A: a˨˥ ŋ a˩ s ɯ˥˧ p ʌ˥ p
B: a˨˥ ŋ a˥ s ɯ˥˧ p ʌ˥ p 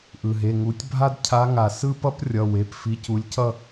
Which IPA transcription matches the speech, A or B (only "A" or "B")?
A